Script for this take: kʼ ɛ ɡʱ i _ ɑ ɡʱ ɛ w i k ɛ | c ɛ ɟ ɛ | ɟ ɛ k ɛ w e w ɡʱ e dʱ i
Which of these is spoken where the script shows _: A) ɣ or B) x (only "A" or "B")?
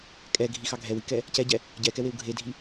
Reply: B